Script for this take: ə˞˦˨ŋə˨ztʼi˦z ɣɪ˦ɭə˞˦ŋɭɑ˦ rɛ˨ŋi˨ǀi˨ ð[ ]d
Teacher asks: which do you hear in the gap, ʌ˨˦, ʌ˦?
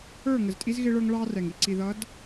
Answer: ʌ˨˦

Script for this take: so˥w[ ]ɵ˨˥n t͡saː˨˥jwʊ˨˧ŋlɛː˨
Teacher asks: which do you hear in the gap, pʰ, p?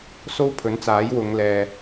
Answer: pʰ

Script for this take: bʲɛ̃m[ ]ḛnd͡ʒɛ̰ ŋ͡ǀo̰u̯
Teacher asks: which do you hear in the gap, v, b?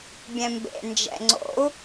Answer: b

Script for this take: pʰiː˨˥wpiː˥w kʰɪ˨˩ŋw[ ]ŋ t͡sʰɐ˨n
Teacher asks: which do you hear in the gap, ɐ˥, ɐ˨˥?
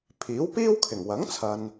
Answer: ɐ˨˥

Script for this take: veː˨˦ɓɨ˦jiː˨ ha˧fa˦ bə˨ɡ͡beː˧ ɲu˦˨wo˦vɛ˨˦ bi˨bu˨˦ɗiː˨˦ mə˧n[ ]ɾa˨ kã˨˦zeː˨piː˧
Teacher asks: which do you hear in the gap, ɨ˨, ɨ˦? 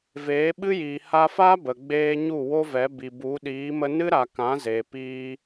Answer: ɨ˦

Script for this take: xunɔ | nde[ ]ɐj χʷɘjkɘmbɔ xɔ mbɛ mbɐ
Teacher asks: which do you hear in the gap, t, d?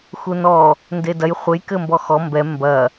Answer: d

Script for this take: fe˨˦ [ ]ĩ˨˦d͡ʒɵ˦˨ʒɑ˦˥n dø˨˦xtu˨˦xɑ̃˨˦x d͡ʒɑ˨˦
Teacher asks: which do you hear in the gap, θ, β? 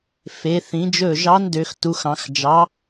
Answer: θ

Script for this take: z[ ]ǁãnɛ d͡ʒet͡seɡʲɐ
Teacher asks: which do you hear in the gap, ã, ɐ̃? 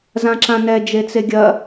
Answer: ã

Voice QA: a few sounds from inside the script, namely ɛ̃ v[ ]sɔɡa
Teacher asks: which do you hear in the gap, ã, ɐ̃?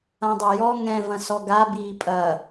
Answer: ɐ̃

